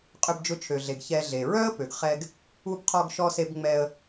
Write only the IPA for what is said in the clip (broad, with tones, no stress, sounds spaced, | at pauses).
qʼ ʏ˧ b d͡ʒ ʊ˧ t͡ʃʰ ø˩ ɮ e˩ ɡ ç ɛ˧ ɮ e˩ ɹ œ˥ ə̯ p ø˩ ɡ χ ɛ˧ ɡ | u˧ b qʰ ɔ˧ ɡ ʃ ɔ˧ s e˧ b ŋ͡m ɛ˧ ə̯